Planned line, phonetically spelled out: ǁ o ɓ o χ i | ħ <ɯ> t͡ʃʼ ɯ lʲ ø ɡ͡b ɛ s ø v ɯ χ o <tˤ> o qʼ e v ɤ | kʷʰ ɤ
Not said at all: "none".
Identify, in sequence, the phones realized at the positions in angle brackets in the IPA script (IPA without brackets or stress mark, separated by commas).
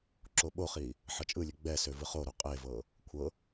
ɤ, ɾ